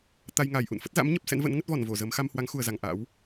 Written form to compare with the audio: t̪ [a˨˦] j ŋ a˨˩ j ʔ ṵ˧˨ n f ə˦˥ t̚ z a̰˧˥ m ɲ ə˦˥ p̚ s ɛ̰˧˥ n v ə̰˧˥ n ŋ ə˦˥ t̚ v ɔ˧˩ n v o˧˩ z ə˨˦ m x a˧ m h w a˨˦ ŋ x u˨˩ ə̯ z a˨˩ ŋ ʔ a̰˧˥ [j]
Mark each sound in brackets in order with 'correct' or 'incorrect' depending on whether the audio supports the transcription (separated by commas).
incorrect, incorrect